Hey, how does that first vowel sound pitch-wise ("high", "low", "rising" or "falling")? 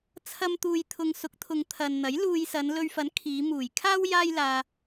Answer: low